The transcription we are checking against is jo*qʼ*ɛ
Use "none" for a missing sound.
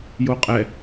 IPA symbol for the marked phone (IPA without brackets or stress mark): qʼ